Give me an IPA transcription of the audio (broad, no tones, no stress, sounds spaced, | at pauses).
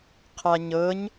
qʰ a ɲ ɤ ɲ